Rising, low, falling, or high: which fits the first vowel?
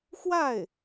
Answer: falling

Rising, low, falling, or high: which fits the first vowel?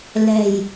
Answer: low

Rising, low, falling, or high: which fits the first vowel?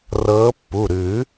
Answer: rising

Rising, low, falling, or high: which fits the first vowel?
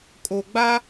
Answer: low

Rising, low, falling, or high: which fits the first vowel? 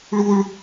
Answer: high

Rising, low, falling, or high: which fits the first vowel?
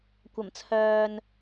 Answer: low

